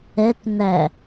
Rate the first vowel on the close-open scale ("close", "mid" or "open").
mid